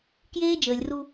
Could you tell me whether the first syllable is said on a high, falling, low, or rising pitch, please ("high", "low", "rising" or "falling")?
high